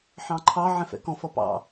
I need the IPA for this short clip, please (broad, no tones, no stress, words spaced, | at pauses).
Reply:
ħɑ̃ǃʰɑ ʕɛ̃fɛ̰kɔ̃f ʌpɑ̰